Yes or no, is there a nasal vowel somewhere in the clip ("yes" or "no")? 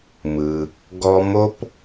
no